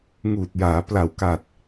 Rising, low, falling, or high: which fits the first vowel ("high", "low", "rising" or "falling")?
low